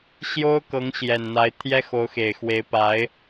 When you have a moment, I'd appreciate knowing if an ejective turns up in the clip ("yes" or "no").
no